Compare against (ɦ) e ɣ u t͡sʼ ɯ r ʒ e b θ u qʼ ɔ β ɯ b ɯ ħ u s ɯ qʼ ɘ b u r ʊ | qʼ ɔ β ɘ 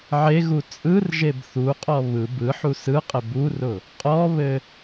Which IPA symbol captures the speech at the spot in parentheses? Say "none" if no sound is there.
ʕ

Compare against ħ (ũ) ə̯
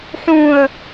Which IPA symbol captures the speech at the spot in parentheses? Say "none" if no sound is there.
ũ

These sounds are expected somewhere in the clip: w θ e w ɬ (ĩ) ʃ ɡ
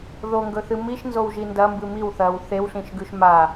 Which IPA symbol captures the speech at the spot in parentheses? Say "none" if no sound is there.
ĩ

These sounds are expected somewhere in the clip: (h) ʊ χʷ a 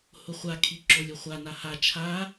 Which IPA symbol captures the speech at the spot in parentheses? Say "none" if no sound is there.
h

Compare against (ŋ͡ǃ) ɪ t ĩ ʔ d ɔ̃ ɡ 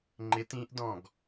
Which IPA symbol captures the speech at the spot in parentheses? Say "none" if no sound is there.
ŋ͡ǃ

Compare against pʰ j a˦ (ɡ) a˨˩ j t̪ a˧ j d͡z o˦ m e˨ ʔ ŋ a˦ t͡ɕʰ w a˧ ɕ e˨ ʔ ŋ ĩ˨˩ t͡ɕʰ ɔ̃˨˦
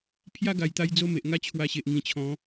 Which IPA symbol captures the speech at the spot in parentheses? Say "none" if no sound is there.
ɡ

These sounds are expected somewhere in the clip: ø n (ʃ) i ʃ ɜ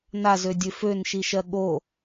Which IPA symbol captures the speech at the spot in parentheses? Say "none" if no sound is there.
ʃ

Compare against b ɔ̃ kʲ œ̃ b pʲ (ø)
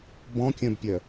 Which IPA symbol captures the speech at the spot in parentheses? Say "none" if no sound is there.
œ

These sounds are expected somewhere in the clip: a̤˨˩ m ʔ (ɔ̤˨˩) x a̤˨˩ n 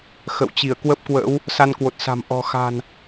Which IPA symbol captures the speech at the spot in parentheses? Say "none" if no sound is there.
ɔ̤˨˩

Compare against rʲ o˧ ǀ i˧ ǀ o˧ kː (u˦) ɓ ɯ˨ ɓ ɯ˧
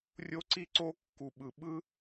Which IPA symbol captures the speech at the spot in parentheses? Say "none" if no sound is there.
u˨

